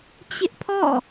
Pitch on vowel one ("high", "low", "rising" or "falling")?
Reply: high